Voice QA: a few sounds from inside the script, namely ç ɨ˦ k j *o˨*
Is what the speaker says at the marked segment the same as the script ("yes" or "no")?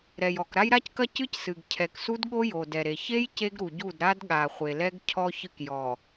no